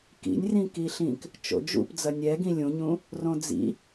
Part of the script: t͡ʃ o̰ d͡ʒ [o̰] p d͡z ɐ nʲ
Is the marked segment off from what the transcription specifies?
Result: yes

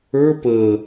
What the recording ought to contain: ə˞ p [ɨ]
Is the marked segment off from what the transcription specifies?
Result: yes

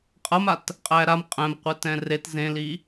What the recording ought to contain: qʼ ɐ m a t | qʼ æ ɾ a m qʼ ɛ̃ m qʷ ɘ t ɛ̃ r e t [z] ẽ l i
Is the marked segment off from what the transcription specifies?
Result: no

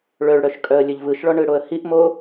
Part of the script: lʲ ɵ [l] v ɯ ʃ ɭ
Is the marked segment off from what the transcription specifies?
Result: yes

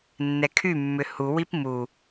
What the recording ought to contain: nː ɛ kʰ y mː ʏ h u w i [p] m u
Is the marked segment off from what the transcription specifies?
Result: no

